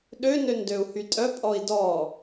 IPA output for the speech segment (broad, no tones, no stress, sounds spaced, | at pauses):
ɗ ø n ø n d ø u̯ h y tʼ œ pʼ ɔ i̯ d ɔ